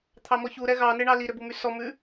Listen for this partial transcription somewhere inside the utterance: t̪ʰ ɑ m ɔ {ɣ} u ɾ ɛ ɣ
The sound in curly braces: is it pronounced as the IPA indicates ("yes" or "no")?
no